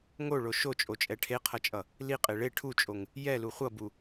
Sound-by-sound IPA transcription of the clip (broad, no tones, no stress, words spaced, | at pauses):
ŋoɭo ʃot͡ʃʼot͡ʃʼɛ ʈʰeqʰʌt͡ʃʼʌ | liqʼe ɭe ʈʰut͡ʃʼoŋ | jɛlu χʷʌbu